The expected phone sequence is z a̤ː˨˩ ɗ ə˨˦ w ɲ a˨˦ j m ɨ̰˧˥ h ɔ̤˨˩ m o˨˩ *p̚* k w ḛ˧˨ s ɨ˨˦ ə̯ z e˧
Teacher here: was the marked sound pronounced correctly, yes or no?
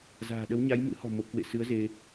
yes